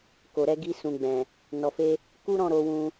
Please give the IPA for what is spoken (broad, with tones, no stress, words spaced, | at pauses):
ko˨ɾɛ˧ ɡi˧sũ˨ɡ͡bɛ̃˨ | nɔ˨fe˧ | ku˦ɾɔ̃˦˨ ɾo˧wũ˧